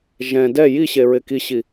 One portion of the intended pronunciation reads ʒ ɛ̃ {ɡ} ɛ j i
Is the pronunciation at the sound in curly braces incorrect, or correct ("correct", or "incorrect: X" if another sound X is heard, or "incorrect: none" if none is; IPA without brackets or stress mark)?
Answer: incorrect: d